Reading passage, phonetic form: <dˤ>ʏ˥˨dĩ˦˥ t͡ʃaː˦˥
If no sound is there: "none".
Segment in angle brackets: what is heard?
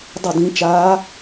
dˤ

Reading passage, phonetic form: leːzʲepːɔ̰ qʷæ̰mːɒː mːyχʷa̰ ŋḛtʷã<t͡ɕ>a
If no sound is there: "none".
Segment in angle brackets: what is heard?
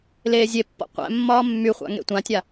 tʲ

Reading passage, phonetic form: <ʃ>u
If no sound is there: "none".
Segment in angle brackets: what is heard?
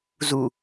z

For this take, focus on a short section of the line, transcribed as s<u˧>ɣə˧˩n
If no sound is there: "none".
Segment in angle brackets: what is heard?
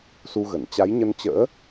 u˧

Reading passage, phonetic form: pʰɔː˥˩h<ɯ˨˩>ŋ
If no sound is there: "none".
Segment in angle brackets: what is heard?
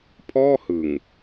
ɯ˨˩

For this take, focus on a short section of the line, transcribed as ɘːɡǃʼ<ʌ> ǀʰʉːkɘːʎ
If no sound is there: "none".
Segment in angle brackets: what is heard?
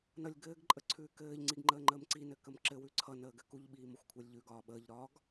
ə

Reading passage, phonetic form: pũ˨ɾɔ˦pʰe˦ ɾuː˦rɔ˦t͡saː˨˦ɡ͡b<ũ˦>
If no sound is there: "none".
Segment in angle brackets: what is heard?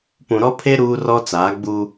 u˦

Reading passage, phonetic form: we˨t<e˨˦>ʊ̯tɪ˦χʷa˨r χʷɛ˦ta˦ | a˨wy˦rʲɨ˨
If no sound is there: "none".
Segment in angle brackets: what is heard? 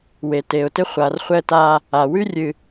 e˨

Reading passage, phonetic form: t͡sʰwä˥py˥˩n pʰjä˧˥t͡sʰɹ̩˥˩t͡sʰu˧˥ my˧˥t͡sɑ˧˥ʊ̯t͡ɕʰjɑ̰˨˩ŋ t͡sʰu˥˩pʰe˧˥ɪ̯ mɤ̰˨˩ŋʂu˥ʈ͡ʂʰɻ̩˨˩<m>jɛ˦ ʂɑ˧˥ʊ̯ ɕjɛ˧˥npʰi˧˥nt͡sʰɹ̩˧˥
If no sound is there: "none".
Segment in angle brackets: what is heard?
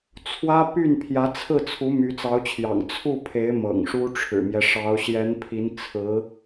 m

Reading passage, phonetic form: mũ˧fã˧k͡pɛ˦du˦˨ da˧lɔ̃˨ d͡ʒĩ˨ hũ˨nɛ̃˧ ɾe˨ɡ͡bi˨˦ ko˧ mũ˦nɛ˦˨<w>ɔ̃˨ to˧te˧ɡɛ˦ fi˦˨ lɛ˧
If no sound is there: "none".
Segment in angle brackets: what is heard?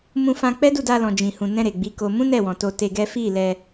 w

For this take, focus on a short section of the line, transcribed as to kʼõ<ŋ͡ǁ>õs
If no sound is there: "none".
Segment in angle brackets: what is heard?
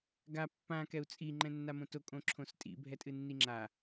ǁʰ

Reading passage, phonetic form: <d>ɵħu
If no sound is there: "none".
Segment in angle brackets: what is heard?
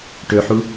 ʈ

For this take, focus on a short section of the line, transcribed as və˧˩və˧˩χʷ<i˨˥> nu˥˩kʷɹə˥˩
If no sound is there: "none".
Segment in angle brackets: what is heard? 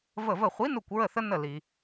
i˨˥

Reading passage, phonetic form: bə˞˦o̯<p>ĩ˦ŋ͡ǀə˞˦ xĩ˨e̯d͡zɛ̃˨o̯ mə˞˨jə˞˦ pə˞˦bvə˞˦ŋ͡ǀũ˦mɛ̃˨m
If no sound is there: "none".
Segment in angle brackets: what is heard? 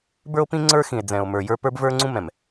p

